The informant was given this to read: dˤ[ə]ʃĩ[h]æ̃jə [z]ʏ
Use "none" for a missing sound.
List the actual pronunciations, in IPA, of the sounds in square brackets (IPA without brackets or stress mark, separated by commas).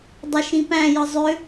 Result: ə, p, zˤ